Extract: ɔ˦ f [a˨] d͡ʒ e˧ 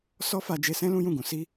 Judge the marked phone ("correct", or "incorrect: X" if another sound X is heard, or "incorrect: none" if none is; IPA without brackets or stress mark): incorrect: a˧